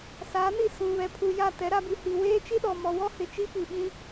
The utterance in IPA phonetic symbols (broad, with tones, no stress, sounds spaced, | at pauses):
s a˨˦ n i˦˨ s ũ˨ β ɛ˨ pʰ u˨ j a˦˨ t ɛ˨˦ ɾ a˦ b i˨ h i˨ w eː˦ t͡ʃ i˦ ɗ ɔ˨ m ɔ˨ w ɔ˦ h ɪ˨ t͡ʃ i˦ p i˨ ɓ ĩ˦